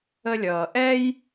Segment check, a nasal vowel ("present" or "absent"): absent